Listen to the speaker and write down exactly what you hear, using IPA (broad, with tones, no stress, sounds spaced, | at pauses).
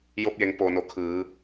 j o˧ p̚ j e˩˧ ŋ p oː˩ n o˩˧ kʰ ɯː˩˧